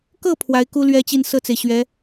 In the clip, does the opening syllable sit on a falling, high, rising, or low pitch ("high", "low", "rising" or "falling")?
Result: falling